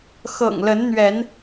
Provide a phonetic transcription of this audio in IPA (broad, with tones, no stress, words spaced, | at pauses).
xɤ̰˨˩ŋlə˨˦nn̪ɥɛ˨˦n